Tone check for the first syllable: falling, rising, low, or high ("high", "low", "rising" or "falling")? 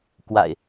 low